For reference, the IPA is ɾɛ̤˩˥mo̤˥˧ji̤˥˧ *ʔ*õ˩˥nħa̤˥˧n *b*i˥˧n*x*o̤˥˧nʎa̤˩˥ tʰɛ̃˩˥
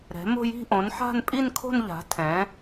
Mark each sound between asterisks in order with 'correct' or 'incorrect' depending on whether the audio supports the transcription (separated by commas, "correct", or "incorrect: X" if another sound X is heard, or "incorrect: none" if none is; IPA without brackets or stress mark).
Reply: correct, incorrect: pʼ, incorrect: kʰ